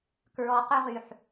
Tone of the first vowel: low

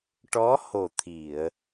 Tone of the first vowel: rising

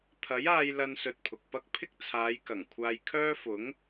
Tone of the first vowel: rising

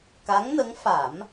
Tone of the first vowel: rising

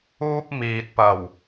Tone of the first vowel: high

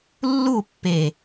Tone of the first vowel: falling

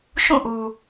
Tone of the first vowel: falling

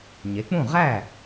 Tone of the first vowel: rising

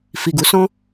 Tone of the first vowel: low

